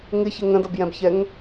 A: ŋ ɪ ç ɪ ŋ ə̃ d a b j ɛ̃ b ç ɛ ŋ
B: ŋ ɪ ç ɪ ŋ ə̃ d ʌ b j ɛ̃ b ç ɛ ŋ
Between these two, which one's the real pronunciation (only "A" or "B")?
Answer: B